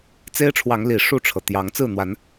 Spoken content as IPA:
t͡s e˦ ɪ̯ ʈ͡ʂʰ w ɑ˨˦ ŋ l i˨˩ ʂ u˥˨ ʈ͡ʂʰ ɤ˩ t̪ j ɑ˨˦ ŋ t͡s ɹ̩˥˨ n̪ w a˨˦ n

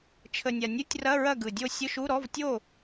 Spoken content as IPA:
t͡ʃʰ ə˨˩ nʲ a˨˩ nʲ u˧˥˧ tʲ r ɐ˧˥˧ ɹ ɐ˥˨ ɡ ɯ˨˩ dʲ o˥˨ sʲ ʊ˧˥˧ ʃ u˧˥˧ ɾ ɔ˧˥˧ v tʲ o˥˨

